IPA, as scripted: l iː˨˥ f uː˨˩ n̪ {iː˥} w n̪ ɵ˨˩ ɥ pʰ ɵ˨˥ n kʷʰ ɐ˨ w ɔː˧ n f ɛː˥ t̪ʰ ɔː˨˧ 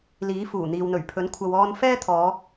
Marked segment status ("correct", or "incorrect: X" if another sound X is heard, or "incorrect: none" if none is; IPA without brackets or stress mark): incorrect: iː˨